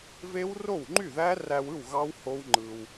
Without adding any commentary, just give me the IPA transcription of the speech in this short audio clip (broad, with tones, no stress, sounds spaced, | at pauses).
v e˦˥ w r o˥˩ w ŋ͡ǃ y˥˩ ð æ˦˥ r æ˧ w ɯ˥˩ w ɣ ɑ˦˥ w h o˦˥ w ŋ͡ǃ ɯ˧ w